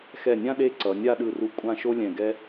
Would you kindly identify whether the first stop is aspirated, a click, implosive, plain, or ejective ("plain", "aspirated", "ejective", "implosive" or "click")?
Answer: implosive